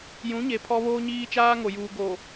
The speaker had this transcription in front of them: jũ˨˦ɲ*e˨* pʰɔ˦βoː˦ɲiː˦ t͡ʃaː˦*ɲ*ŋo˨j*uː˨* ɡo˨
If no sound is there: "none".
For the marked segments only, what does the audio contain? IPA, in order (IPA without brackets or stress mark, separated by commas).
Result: e˨, none, uː˨